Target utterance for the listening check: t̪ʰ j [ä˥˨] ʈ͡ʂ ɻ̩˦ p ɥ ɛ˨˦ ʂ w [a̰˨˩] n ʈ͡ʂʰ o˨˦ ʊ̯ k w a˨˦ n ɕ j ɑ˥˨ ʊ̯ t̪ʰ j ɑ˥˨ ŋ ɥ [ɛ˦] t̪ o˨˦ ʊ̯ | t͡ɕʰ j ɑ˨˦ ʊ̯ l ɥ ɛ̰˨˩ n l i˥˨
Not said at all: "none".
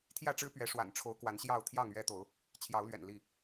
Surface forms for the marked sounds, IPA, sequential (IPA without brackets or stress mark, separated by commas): ä˥˨, a̰˨˩, ɛ˦